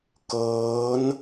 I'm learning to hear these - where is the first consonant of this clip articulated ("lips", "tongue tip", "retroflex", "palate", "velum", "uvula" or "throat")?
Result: velum